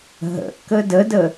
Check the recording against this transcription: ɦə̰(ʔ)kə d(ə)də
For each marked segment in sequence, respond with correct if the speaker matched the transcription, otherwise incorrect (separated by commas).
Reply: correct, correct